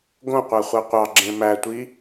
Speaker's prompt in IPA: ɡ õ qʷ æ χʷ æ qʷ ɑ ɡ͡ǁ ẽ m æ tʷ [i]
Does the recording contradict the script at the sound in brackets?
no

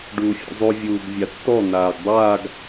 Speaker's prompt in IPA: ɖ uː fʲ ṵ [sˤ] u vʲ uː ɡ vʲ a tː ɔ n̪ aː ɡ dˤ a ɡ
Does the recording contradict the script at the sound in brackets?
yes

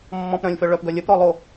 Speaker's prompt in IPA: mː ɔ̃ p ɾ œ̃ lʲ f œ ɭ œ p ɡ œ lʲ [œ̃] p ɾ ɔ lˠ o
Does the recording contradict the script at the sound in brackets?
yes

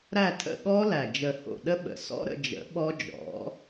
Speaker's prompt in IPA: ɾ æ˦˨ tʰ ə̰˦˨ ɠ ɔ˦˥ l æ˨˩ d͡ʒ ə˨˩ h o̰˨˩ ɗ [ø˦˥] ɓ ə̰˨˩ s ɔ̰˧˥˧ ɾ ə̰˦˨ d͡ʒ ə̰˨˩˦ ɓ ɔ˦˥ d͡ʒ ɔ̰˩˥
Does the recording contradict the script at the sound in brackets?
yes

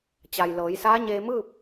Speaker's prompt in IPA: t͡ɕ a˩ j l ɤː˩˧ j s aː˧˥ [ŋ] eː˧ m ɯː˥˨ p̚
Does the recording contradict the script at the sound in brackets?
yes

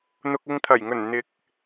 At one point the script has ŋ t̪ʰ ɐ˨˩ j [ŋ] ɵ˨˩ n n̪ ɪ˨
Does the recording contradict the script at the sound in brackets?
no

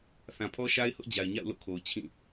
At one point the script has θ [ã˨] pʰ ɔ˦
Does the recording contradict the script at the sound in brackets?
no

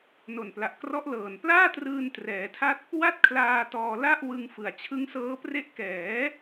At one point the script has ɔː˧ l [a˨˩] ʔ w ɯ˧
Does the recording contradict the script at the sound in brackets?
yes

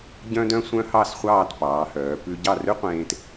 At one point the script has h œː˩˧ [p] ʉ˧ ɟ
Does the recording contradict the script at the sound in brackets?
no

